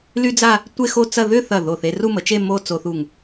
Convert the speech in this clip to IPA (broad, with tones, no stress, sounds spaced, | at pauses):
l y˥ d͡z a˥˧ | tʷ e˥˧ x o˥˧ t͡s ɐ˥˧ ð ʏ˥˧ θ ɐ˧˩ ð o˧˩ θ e˧ r u˥˧ m ə˩˧ t͡ʃ e˥˧ m o˥˧ t͡s o˧ θ u˧˩ ŋ